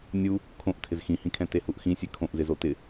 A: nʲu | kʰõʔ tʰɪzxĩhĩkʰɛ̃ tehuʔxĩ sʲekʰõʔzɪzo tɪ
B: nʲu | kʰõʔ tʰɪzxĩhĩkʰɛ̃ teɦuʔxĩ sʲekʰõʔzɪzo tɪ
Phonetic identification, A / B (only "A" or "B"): A